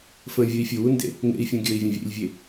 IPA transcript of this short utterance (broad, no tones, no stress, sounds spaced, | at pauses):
f ə̃ vʲ ɵ i̯ fʲ u w u n d ḛ | ŋ ḛ i̯ fʲ ũ ɡʲ ɵ i̯ vʲ ə̃ vʲ ḛ lʲ vʲ e